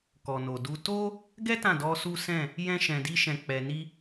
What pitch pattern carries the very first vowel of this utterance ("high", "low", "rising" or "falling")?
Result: low